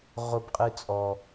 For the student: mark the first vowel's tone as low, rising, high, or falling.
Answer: high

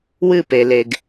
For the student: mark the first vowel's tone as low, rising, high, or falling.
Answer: falling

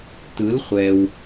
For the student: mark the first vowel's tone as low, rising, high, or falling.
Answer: rising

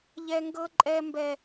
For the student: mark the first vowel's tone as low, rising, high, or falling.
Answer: high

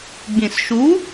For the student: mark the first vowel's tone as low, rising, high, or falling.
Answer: low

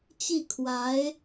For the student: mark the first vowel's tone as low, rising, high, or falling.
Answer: falling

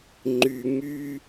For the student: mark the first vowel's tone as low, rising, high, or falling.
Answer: low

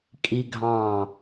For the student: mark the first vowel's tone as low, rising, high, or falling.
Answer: high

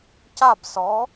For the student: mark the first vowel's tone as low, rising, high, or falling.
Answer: falling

